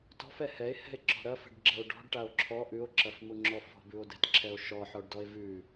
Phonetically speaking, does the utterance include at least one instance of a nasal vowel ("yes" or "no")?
no